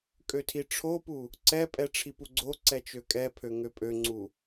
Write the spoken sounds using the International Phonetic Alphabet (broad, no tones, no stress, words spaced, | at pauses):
kʼøtʰiʈ͡ʂʰopu | ǀɛpʼɛ ʈ͡ʂʰipuɡ͡ǀoǀɛ t͡ʃøkʼɛpʰø ŋøpʼøŋ͡ǀu